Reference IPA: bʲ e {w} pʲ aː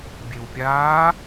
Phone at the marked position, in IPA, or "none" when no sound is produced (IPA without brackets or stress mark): w